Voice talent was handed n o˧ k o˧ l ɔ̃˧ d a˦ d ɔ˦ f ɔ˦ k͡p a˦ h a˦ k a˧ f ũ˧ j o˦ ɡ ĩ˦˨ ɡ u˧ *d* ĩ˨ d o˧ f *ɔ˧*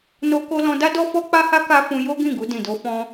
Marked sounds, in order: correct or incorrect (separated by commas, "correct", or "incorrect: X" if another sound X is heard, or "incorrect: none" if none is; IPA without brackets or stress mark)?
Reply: correct, incorrect: ɔ̃˧